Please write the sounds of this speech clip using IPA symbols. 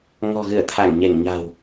ŋɔ̤˨˩ɣɨ˧˩ə̯ t̪ʰa˧˩ŋɲe˧˩ŋɲa̤˨˩w

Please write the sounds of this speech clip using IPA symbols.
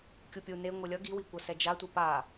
kʲupʲu ne ŋʷɯlʲʌ ɡiwikʷʌ sɛd͡ʒatʷi pa

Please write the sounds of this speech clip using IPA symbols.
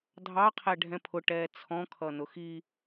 dʱɑqʰɛ ɖʱɛ̃pʰʊʈɛː t͡sʰɔ̃kʰʌ nʊxi

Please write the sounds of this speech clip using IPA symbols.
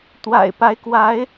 t̪wa̰˨˩ɪ̯pa˧˥ɪ̯ kwa˧˥ɪ̯

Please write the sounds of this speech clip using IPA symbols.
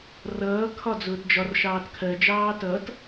rʌː kʰɒd͡zʊːtd͡ʒɒr ʃɑːtkʰɜ d͡ʒɑːtʌt

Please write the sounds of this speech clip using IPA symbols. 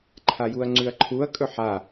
ǃʰajuɐ̯ŋ͡ǀʉɐ̯ǃʰuɐ̯ kʼɵħa

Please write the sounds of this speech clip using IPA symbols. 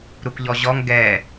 ɾukʎɔʑɔŋ ɡɛ

